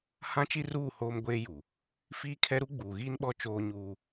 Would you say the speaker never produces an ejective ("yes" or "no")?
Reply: yes